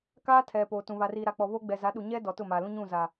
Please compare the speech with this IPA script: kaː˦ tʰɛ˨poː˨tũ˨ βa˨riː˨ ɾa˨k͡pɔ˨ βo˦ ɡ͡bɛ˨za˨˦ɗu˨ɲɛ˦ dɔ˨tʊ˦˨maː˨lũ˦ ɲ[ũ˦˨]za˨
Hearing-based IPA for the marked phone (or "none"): ũ˦˨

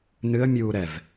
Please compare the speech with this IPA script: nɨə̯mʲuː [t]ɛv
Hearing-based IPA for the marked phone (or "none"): ɾ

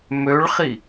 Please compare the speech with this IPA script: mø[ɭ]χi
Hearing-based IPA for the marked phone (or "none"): ɭ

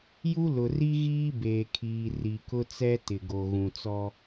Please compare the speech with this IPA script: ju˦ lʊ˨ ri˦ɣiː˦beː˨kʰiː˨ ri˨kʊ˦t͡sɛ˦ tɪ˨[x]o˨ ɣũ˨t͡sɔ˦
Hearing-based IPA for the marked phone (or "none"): ɡ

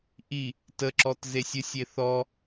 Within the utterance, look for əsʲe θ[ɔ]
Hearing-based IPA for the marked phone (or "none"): ɔ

